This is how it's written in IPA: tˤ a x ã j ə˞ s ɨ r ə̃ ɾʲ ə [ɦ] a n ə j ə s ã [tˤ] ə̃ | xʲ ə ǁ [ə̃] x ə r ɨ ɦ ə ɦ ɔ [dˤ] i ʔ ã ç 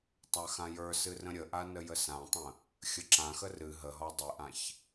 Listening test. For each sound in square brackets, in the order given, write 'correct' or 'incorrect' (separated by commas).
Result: incorrect, correct, incorrect, correct